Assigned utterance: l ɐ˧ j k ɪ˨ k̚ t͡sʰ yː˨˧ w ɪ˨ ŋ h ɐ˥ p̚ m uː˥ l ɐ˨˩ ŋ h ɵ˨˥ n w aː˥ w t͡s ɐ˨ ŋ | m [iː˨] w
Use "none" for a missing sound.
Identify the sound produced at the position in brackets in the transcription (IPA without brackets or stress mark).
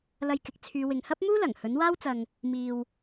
iː˨